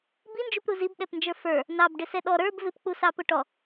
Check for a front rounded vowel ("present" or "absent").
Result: absent